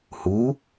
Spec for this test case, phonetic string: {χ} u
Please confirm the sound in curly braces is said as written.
no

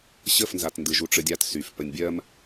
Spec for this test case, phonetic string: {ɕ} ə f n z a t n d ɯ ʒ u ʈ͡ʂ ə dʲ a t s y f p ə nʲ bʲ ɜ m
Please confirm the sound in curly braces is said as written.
yes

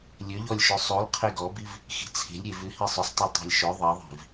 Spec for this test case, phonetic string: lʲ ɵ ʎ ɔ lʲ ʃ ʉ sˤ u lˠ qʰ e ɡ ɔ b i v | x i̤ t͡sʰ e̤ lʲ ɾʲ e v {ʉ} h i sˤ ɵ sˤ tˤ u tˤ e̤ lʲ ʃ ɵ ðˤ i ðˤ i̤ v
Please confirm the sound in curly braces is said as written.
yes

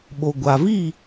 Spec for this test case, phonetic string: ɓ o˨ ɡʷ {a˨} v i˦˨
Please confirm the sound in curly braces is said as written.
yes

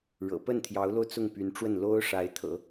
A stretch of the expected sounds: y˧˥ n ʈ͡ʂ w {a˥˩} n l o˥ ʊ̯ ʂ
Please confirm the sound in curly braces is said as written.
no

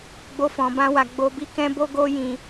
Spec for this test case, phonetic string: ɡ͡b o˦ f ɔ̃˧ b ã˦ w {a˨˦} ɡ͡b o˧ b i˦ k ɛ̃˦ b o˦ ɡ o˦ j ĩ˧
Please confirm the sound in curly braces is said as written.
no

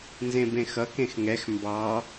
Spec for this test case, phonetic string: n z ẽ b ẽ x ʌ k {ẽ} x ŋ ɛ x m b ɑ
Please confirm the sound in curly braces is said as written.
yes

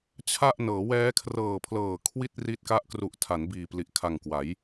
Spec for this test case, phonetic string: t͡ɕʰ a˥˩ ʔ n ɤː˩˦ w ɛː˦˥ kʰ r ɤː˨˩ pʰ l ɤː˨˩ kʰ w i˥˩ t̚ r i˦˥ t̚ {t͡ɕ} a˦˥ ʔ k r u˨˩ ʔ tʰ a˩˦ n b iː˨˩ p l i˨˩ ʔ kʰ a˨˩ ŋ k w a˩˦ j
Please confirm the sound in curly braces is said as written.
no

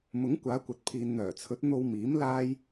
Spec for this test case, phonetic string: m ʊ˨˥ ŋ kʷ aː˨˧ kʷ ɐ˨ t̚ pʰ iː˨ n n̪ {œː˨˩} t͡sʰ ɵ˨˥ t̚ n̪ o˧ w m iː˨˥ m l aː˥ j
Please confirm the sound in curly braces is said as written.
yes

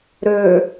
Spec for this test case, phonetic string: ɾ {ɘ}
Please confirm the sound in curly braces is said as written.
no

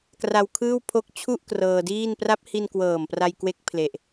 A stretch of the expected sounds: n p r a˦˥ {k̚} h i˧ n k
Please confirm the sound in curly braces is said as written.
no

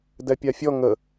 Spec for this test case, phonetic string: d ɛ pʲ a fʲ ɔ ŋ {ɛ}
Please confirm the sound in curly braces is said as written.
no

